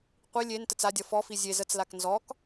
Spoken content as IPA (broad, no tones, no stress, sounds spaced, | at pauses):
qʷ i lʲ e n t ə t͡s a dʲ ʌ f ɔ f i zʲ e z ə t͡s l a k n z ɔ k